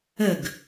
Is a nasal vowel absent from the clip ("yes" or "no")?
yes